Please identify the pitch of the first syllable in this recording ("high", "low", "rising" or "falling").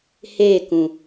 falling